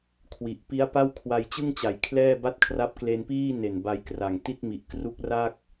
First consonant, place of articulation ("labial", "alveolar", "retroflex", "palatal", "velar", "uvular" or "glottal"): velar